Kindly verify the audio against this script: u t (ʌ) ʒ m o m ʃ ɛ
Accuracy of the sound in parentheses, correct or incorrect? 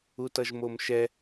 correct